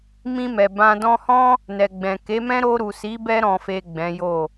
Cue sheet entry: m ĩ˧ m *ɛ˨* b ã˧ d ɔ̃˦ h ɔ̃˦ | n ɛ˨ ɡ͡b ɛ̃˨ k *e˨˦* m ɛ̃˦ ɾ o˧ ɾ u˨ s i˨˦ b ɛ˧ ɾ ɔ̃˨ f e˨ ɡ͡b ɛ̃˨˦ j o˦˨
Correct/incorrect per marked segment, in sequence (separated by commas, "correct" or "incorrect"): correct, correct